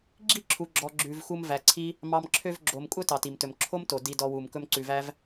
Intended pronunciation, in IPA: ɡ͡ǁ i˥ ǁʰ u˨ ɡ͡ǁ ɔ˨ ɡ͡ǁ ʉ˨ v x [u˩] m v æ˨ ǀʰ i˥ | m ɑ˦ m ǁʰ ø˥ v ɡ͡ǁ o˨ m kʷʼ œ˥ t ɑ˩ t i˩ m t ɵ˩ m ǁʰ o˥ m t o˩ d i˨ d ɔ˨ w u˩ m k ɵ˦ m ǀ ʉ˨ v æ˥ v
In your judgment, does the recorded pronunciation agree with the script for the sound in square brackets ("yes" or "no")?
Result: no